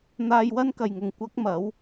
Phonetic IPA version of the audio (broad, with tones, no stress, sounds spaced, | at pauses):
n̪ aː˧ j w ɐ˥ n k ɐ˨ j ŋ ʊ˨ ŋ kʷ ɐ˥ k̚ m ɐ˨˥ w